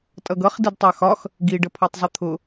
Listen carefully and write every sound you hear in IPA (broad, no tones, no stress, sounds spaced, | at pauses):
tʼ ʌ ɡ ʌ χ d i d tˤ a x ɒ x | ɡ i ɖ ə pʰ ɔ tˤ zˤ ʌ t̪ʰ ʊ